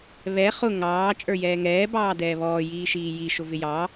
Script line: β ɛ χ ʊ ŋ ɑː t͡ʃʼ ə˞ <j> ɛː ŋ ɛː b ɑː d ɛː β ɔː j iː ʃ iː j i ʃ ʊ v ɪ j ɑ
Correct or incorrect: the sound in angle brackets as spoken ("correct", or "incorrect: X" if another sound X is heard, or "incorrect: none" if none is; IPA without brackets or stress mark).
correct